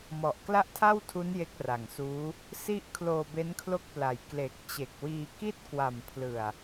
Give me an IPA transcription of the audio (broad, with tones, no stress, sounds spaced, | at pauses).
m ɔ˨˩ ʔ k l a˥˩ ʔ tʰ a˥˩ w tʰ u˦˥ n j e˦˥ k̚ r a˨˩ ŋ s uː˦˥ | s i˦˥ ʔ kʰ l oː˧ b e˦˥ n kʰ l o˥˩ k̚ p l a˨˩ j k l e˨˩ k̚ t͡ɕ e˨˩ k̚ w iː˧ k i˥˩ t̚ k w a˨˩ m pʰ l ɯ˨˩ a̯